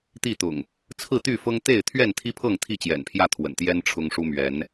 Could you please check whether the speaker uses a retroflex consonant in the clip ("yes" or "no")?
yes